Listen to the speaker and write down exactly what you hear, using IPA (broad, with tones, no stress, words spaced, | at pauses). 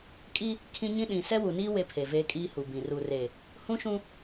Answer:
kʼi˦ | kʰĩ˦ɲĩ˦ ɗĩ˨ sɛ˦wu˨niː˦ we˦pʰe˨veː˦kʼiː˦ hu˨bĩ˨ ru˨re˨ | hũ˦ʃũ˦